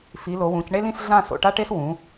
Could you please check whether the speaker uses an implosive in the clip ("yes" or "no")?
no